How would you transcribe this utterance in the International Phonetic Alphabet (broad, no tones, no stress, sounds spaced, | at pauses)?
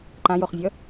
ǃ ã j o χ vʲ ʌ